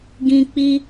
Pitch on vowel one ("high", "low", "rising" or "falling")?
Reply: high